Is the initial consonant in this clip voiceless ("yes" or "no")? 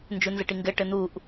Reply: no